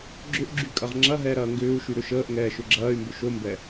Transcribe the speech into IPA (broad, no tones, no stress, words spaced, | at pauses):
ɡ͡ǁʏʔɡ͡ǁy kʼɐʁŋ͡ǁɐɦɛː ɾɐːŋɡʏːu̯ʃy ɾʏʃəːʔŋɛː ʃʏɡ͡ǁɐːy̯mbʏ ʃombɛ